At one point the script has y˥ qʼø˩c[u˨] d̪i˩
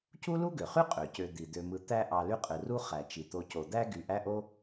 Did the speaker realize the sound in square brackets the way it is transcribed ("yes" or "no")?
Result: no